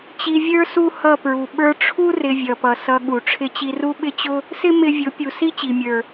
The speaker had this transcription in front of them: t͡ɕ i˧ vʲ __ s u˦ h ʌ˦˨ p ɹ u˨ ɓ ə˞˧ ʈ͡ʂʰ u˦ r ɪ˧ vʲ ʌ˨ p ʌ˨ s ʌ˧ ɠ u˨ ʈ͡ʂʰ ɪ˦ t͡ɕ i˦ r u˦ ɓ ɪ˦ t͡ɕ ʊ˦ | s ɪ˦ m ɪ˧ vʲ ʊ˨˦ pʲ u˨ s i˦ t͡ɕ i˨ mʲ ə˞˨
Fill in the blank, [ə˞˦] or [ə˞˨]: ə˞˦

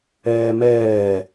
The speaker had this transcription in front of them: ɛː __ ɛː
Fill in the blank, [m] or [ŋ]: m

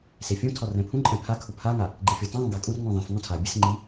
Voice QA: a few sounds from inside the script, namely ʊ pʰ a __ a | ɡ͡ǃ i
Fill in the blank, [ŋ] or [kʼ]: ŋ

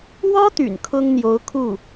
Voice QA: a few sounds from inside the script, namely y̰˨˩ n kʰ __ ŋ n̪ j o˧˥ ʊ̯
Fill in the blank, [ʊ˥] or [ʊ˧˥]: ʊ˥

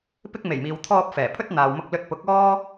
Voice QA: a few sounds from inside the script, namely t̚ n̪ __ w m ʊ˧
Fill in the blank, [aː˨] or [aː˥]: aː˨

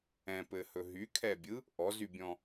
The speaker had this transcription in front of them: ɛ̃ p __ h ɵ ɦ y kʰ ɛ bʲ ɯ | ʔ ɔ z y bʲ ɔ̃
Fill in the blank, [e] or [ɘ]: ɘ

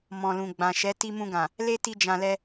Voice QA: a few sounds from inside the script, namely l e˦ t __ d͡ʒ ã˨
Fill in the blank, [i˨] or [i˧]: i˧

